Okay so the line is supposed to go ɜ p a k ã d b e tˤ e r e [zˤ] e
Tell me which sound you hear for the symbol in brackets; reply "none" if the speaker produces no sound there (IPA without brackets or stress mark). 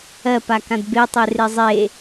zˤ